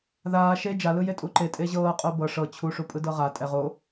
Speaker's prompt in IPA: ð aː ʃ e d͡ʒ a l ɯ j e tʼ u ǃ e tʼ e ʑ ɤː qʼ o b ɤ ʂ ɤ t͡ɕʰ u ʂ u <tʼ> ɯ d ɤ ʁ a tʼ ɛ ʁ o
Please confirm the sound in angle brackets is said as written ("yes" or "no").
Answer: no